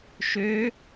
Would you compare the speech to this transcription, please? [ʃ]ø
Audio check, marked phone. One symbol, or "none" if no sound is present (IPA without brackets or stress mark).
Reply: ʃ